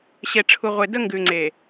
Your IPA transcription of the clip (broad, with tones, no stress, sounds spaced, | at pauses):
ɕ e˨ ʈ͡ʂʰ u˨ ʁʷ e˨ d ə˦ ŋ ɡ ʉ˨ ŋ͡ǀ e˨